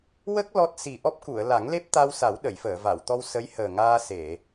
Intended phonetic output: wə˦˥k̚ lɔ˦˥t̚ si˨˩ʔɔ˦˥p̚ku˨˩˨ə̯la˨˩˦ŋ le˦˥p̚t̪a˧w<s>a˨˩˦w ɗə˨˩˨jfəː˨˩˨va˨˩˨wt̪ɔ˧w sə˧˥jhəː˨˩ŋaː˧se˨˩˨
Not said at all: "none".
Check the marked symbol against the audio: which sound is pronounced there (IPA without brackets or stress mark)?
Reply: s